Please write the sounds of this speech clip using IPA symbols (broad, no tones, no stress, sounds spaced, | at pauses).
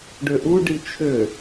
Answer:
ɖ ø ʔ u ɖ i t͡ʃʰ ø